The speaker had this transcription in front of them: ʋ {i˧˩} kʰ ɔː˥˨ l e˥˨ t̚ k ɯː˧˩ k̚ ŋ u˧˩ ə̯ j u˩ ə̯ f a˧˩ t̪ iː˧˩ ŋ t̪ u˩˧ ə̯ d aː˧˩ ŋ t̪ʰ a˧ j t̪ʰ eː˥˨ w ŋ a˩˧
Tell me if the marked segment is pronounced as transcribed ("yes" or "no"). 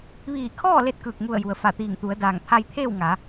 no